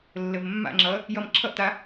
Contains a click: yes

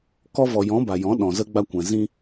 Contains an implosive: yes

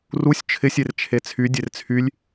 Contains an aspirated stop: yes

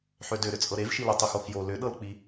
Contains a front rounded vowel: yes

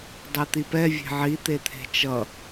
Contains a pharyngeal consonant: yes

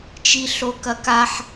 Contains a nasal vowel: no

